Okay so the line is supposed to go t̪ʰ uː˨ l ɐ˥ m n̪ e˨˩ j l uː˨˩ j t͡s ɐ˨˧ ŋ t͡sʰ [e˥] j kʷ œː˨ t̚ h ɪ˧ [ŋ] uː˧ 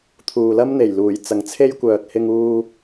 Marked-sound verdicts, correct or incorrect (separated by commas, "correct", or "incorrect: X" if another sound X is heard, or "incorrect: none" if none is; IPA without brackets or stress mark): correct, correct